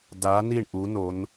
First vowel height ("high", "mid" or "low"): low